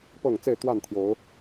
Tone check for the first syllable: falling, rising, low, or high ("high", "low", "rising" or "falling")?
low